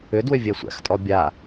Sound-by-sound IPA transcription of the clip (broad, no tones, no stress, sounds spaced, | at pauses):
ʏ d w ʏ vʲ ɛ sʷ æ̰ x tʼ ɔ bʲ a